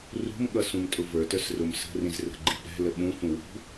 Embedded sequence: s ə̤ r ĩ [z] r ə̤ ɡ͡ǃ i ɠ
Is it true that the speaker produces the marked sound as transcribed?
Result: yes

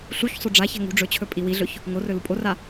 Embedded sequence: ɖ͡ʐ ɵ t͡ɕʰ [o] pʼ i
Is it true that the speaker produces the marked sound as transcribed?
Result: no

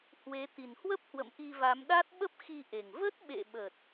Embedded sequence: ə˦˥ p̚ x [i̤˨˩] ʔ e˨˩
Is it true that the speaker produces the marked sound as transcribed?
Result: no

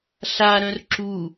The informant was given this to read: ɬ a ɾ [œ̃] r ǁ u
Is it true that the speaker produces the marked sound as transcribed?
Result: yes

